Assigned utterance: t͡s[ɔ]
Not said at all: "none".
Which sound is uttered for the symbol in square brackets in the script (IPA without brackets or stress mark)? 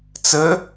ə